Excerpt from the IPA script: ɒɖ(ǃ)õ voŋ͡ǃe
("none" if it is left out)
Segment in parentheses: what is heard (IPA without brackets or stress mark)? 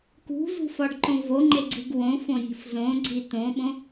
ǃ